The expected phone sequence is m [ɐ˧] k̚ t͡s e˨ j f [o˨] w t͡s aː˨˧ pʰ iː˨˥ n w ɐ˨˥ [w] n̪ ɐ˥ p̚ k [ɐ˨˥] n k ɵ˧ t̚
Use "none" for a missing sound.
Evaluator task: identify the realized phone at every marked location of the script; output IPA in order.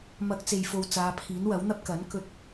ɐ˧, o˨, w, ɐ˨˥

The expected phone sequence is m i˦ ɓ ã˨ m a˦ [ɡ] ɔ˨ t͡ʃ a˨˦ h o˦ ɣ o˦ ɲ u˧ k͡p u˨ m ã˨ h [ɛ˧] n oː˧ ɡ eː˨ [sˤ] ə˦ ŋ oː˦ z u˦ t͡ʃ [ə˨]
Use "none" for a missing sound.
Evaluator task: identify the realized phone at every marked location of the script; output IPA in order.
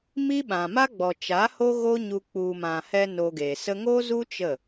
ɡ͡b, ɛ˧, s, ə˦˨

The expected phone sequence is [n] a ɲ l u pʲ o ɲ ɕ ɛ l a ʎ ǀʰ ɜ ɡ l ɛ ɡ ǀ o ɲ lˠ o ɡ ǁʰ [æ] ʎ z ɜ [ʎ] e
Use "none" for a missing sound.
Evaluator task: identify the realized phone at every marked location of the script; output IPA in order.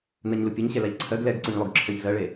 n, ɜ, ɭ

